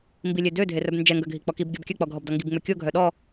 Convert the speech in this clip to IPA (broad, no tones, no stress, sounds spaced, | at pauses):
m b i lʲ e d ø dʱ e r œ b n d͡ʒ ɛ ŋ ɡ œ ɡʱ i k͡p ɔ k i b ɡʲ ɔ b kʲ œ k͡p ɔ ɡʱ ɔ b d ɔ ŋ ɡ i b ŋ͡m ø kʲ o ɡʱ œ ɗ ɔ